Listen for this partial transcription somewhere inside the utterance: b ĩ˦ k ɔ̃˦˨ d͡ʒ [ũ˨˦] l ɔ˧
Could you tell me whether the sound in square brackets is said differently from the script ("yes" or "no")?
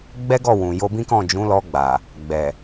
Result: no